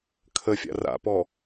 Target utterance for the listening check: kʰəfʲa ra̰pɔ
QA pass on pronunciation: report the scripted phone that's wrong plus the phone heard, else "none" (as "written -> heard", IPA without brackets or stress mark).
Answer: a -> a̰